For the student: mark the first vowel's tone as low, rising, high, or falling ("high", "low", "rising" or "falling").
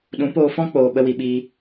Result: rising